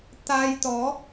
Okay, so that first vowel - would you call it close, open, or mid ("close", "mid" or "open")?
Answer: open